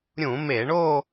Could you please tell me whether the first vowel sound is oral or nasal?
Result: nasal